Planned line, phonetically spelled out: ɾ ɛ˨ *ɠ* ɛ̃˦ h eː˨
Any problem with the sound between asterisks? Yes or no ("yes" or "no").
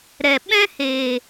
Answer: yes